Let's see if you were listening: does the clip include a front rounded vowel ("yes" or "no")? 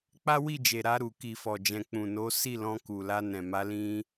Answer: no